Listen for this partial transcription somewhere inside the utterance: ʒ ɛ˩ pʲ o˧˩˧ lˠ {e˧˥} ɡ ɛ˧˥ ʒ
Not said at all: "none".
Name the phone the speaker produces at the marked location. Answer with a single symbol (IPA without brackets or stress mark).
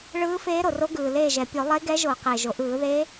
e˧˥